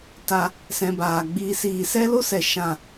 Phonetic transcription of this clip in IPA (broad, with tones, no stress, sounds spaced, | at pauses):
t a˧ | s ɛ̃˧ b aː˨ ɡ͡b iː˧ s iː˨ s ɛ˦ l o˦ s ɛ˨ ʃ ã˦˨